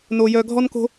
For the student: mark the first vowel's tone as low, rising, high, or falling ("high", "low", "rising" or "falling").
low